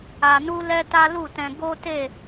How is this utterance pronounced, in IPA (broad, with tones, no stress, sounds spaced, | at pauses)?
a˧ n u˦ l ɛ˦ t a˦ l u˦˨ t ɛ̃˧ ɡ o˦ t e˦˨